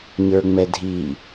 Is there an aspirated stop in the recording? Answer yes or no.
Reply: no